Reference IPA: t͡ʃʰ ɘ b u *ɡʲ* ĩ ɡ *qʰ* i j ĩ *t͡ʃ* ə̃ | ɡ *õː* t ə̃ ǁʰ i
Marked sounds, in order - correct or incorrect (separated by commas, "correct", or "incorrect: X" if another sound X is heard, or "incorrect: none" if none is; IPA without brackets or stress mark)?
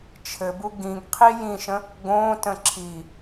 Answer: incorrect: ɡ, correct, incorrect: ʃ, correct